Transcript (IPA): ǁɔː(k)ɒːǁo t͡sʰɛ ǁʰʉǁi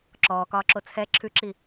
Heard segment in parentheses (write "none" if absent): k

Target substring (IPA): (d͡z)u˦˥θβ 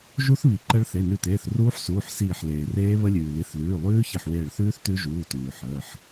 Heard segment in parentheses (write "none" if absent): ʒ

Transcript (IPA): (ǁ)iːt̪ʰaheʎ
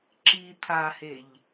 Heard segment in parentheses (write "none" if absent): ǁ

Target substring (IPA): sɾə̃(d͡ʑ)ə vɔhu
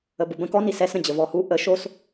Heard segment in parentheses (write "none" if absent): d͡ʑ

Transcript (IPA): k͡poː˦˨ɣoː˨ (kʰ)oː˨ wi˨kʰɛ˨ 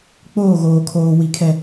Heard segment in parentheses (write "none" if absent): kʰ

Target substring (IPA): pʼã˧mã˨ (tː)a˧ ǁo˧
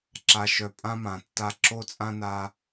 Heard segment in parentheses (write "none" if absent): tː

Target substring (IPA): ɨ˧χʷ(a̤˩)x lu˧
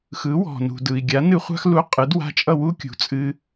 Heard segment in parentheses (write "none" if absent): a̤˥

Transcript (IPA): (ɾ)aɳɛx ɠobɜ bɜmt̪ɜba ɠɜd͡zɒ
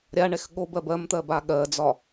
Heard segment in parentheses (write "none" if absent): ɾʲ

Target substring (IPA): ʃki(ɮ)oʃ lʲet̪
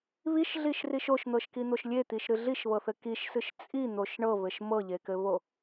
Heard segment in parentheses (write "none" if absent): n̪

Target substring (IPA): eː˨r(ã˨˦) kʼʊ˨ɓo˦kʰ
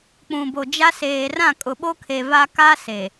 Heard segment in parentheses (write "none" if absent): ã˦˨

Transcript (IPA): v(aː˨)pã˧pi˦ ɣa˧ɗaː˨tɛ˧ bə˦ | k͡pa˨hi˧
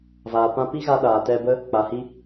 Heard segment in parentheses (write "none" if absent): aː˨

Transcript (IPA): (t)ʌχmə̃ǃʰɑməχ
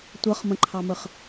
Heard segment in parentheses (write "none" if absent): tʷ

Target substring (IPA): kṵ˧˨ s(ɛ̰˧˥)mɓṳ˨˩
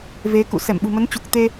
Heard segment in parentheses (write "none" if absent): ɛ˧˩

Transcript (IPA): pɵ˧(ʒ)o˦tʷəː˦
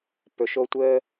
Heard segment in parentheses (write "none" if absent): ʃ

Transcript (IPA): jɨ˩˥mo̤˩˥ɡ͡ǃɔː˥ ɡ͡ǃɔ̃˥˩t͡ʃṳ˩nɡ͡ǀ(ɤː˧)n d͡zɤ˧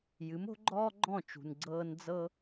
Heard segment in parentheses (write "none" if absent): ɤː˧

